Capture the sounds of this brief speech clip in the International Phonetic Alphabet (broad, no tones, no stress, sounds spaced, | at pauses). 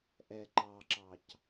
ʔ ɛ ǃ ɑ ǁ ɑ c